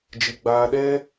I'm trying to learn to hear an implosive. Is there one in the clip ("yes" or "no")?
yes